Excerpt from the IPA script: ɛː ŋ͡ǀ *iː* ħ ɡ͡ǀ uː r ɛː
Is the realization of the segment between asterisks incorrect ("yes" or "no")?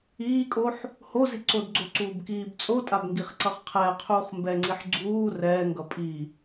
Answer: yes